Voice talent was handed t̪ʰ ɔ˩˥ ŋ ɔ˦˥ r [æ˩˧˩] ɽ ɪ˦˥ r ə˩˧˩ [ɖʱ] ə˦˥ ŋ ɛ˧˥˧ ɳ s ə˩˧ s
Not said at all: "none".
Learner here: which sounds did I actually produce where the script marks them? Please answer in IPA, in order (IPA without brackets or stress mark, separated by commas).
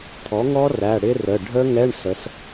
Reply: æ˩˧˩, ɖʱ